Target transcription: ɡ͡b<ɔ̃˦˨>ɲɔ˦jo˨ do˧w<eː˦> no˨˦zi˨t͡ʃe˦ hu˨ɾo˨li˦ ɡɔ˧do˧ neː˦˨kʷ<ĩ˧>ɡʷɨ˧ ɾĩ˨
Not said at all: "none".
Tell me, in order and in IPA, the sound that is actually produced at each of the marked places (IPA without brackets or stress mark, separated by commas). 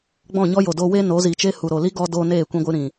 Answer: ɔ̃˦˨, e˦, ĩ˧